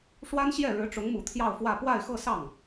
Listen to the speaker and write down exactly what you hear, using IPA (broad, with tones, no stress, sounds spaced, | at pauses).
ʂ w a˥ n ɕ j ɛ˥˩ ɻ ɻ̩˧˥ ʈ͡ʂ ʊ˧˥ ŋ m u˨˩ t̪ʰ j ɑ˥˧ ʊ̯ f w ä˥˧ p w a˥˧ ɪ̯ x ɤ˥˧ s ɑ˥˩ ŋ